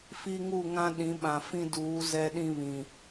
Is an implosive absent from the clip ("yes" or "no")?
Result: no